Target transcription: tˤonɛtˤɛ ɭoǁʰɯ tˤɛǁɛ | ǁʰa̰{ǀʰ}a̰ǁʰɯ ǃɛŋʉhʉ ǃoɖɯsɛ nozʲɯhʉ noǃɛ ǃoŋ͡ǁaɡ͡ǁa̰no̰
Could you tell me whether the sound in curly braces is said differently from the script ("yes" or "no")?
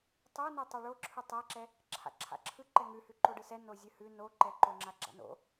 yes